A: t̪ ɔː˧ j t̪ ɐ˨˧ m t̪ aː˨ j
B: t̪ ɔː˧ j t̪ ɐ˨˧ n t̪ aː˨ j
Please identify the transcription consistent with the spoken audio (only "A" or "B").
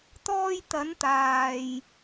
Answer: B